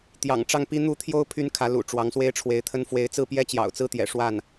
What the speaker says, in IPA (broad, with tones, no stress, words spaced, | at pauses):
t̪jɑ̰˨˩ŋʈ͡ʂɑ˥˩ŋpi˥ n̪u˥˩ t̪ʰjo˥ʊ̯ pʰy˥nkʰä˧˥ lṵ˨˩ ʈ͡ʂwɑ˧˥ŋswe˥ɪ̯ʈ͡ʂʰwe˧˥ɪ̯t̪ʰə˥n fwe˧˥ɪ̯t͡sɹ̩˥˩ pjɛ˥t͡ɕjɑ̰˨˩ʊ̯t͡sɹ̩˥t̪jɛ̰˨˩ ʂwa˥˩n